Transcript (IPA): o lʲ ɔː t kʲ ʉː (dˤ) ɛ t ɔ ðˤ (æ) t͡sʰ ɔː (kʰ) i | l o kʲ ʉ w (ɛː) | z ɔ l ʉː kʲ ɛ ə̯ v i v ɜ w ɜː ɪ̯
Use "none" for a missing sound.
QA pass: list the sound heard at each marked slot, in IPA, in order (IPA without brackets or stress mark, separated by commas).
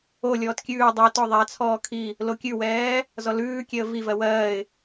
dˤ, æ, kʰ, ɛː